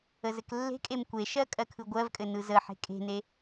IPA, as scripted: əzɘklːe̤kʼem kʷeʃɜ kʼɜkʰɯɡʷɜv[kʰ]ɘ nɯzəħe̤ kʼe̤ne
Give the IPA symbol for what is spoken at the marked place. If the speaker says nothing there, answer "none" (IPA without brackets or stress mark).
kʼ